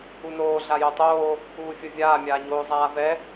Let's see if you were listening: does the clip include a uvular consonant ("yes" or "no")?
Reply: no